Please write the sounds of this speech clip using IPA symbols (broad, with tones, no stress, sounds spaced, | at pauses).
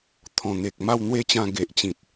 t̪ʰ ɔ̃˨˩ n̪ e˨ k̚ m a˥˧ w n̪ w e˥˧ t͡ɕ ã˧ ɡ e˨ ʔ t͡ɕ ĩ˨ t̚